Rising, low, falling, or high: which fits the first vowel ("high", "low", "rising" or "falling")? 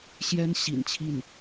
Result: high